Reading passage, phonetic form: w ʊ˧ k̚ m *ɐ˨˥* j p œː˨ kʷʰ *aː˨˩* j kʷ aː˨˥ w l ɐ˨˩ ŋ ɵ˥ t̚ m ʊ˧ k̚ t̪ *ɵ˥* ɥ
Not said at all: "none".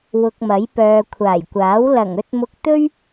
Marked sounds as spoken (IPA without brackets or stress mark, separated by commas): ɐ˨˥, aː˨˩, ɵ˥